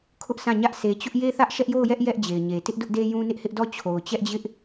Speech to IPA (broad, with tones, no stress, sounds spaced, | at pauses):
kʰ ʊ˦ ʔ sʰ ã˦˨ ɲ ä˦ ʔ s e˨ t͡ɕ ʊ˦ ʔ j e˦ θ ä˦ ʔ ʃ ɛ˦ ʔ j o˦˨ ʊ̯ j ɛ˦ ʔ j ɛ˦ ʔ d͡ʑ e˨ ɪ̯ ɲ e˨ t ɪ˦ ʔ d ʊ˦ ʔ d e˦ j ũ˦ n ɪ˦ ʔ h ɪ˦ ʔ d ɔ˦˨ t͡ɕʰ o˨ ʊ̯ t͡ɕ ɛ˦ ʔ d͡ʑ ɪ˦ ʔ